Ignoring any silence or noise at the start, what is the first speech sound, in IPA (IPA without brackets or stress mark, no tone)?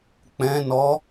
k͡p